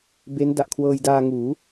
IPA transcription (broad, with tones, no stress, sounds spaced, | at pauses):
b e˦˥ n d a˨˩ ʔ kʰ w ɤː˧ j d aː˧ ŋ uː˩˦